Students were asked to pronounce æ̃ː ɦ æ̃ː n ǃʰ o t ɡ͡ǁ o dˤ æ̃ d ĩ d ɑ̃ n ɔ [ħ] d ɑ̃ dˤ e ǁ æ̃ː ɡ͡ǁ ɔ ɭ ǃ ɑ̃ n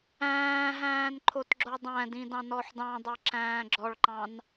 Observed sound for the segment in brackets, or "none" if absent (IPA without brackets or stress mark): ħ